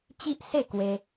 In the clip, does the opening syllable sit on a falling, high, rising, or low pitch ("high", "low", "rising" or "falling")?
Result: high